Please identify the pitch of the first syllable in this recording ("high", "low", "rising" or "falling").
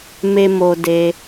high